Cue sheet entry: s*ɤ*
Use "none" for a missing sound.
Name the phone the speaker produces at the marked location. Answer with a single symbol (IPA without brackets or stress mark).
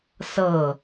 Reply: ɤ